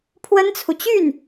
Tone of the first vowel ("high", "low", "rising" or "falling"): high